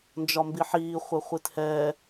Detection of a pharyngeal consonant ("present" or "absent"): present